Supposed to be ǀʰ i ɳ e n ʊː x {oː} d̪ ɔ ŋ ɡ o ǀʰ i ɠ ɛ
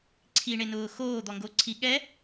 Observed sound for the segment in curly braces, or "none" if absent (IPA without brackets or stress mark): oː